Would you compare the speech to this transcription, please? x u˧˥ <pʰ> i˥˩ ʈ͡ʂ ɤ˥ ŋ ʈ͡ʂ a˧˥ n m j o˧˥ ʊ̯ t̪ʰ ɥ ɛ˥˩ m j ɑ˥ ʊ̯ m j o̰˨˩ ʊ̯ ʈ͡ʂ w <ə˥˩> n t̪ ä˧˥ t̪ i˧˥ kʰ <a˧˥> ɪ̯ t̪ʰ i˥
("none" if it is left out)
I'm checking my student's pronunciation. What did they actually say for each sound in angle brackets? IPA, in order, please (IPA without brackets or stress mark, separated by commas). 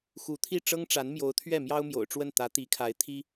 t̪ʰ, ə˥˩, a˧˥